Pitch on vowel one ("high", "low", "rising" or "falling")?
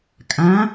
rising